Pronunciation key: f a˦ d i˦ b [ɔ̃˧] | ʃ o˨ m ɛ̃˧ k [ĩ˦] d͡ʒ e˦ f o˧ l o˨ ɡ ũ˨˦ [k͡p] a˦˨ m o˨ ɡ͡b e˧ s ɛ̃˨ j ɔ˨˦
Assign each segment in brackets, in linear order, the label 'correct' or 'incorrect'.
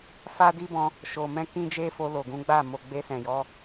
correct, correct, incorrect

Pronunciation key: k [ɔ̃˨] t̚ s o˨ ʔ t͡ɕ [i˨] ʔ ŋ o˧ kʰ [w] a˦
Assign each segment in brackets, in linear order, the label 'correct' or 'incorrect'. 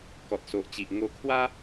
incorrect, correct, correct

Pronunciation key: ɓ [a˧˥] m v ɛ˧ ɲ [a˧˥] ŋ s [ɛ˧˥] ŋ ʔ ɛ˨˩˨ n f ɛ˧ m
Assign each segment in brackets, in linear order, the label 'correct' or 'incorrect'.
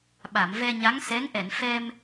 incorrect, correct, correct

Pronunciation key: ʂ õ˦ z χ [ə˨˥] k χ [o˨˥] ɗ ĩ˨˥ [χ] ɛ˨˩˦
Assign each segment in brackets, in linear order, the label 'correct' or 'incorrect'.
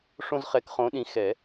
incorrect, incorrect, incorrect

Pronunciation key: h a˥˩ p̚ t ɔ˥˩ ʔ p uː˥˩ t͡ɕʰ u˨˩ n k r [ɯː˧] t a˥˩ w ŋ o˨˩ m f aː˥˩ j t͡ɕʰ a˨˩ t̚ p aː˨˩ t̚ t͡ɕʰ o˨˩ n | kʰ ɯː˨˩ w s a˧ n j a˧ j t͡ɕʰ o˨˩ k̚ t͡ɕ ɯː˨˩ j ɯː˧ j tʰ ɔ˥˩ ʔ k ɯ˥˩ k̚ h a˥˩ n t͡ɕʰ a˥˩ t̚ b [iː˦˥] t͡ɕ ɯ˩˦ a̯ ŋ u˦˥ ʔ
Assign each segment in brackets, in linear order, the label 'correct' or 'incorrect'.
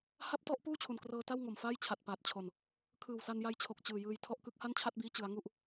incorrect, correct

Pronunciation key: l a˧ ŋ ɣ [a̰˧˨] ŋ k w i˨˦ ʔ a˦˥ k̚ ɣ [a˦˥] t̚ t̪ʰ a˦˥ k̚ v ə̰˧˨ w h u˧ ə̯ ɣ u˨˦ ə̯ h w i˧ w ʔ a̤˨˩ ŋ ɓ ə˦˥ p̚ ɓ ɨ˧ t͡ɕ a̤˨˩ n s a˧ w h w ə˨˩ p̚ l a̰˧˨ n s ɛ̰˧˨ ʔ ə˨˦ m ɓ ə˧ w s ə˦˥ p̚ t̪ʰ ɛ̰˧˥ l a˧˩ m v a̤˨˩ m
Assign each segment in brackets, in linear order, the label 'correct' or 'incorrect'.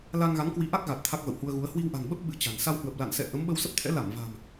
incorrect, incorrect

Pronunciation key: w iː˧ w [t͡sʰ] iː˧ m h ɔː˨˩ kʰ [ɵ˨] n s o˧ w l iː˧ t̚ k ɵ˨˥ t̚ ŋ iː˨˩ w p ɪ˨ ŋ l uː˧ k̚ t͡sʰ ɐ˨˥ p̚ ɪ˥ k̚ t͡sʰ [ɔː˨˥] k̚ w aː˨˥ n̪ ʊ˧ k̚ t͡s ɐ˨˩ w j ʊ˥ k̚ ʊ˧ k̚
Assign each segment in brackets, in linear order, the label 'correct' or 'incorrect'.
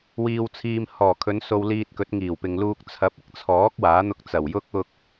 correct, incorrect, correct

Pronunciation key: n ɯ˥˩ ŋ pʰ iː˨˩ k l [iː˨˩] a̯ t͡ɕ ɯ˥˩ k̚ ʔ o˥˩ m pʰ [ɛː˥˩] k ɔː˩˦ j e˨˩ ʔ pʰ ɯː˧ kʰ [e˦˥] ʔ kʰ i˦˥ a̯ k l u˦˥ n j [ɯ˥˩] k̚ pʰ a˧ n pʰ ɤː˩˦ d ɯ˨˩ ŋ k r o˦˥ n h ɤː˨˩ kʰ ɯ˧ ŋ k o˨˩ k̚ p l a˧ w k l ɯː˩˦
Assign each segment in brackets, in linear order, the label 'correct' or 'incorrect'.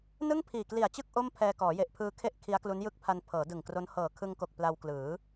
incorrect, incorrect, incorrect, correct

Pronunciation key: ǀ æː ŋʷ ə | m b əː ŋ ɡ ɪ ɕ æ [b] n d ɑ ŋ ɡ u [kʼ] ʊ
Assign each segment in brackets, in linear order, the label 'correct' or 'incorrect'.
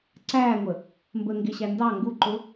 incorrect, incorrect

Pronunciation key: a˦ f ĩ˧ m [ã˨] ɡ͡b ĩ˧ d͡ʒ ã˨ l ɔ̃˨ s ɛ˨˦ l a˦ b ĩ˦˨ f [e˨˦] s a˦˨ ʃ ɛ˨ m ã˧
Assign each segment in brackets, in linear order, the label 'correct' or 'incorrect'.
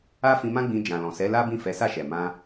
incorrect, incorrect

